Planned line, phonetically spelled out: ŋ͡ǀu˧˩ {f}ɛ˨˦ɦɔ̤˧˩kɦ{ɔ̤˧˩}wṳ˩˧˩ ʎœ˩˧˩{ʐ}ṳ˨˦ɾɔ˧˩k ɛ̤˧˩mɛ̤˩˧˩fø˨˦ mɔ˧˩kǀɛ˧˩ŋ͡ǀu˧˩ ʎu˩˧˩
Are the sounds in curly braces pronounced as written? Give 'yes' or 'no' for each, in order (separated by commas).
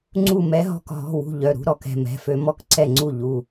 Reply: no, no, no